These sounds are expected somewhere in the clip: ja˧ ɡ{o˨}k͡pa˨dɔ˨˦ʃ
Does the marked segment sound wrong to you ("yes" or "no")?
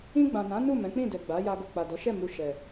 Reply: no